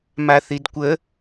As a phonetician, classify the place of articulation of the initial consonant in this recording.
labial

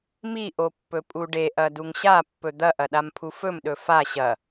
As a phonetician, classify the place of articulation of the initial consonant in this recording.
labial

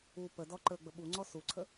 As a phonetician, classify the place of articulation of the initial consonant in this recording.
labial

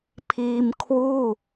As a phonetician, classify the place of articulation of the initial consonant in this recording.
labial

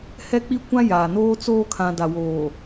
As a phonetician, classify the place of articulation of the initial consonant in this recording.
glottal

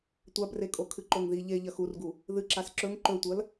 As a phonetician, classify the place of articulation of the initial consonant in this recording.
alveolar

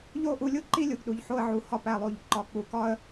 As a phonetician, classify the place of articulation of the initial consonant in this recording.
palatal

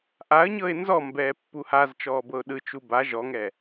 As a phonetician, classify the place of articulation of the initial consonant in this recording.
glottal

